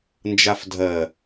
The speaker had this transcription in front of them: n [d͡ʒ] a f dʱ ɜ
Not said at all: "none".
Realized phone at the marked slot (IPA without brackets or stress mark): d͡ʒ